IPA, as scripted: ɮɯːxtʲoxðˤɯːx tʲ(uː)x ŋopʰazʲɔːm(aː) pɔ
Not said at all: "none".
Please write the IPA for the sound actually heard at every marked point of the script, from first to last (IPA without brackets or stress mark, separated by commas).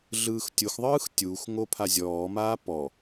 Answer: uː, aː